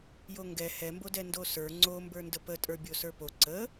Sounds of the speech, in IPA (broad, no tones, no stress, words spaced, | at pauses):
joŋɡɛ hɛmbodɛ ndosə˞ ŋ͡ǀombə˞ ndəpətʼə˞ bʲosə˞po ǀə